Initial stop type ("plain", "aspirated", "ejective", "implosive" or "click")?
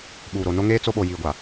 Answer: implosive